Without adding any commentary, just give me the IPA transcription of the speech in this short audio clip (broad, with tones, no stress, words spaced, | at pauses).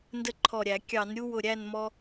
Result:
ndə˦ǃʰɔ˧˩ɾʲæ˧˩˧ kʲɑ˧˩˧nɾʲu˦wʊ˧˩ ɾʲæ˥˨nmɔ˦